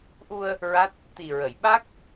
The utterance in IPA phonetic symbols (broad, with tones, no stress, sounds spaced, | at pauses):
ʔ u˧ ə̯ | ɹ a˦˥ t̚ | t̪ i˨˩ ɹ ə˨˩˨ j ɓ a˦˥ k̚